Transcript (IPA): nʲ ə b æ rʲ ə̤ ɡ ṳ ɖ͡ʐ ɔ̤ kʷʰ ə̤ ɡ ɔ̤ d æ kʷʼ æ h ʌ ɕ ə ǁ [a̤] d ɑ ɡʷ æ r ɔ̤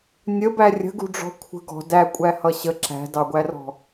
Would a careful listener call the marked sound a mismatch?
yes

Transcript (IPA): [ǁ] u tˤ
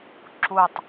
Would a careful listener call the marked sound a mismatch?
no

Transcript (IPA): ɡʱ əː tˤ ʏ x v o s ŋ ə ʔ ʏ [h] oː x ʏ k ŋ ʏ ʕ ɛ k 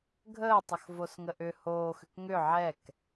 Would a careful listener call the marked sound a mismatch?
no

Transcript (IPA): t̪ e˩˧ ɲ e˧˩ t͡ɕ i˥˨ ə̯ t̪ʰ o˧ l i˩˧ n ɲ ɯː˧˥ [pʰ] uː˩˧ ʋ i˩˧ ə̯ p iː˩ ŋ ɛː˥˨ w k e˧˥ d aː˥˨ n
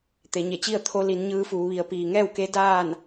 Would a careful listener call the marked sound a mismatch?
yes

